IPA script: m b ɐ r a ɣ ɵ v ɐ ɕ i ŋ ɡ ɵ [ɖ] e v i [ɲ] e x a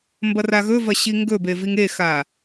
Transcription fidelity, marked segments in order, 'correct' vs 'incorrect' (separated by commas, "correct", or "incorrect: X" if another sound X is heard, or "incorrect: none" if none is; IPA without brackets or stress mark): incorrect: b, incorrect: ŋ